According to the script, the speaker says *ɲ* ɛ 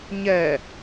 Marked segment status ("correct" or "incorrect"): correct